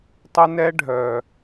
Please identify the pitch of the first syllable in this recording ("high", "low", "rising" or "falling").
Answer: high